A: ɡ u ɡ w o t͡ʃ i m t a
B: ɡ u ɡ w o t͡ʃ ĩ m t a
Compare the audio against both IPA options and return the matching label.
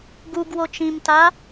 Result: B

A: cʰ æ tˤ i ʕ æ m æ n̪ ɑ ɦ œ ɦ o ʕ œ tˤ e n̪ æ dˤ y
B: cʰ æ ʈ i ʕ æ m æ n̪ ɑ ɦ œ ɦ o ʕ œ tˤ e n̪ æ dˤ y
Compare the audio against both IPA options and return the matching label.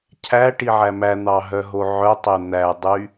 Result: B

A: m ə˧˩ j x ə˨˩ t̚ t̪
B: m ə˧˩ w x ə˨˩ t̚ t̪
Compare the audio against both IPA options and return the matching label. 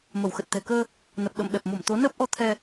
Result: B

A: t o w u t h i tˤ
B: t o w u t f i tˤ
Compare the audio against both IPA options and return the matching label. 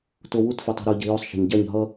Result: B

